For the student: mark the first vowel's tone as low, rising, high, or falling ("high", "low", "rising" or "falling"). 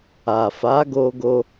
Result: low